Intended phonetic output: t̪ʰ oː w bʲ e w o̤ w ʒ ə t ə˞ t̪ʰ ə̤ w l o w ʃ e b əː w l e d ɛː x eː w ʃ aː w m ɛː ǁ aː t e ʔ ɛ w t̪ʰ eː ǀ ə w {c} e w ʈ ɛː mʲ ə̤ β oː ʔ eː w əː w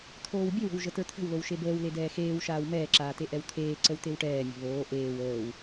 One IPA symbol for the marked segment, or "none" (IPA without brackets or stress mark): t̪